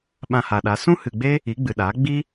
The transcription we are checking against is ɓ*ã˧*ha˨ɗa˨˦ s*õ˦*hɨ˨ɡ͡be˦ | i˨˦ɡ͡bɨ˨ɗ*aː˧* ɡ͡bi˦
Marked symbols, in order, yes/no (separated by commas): yes, no, no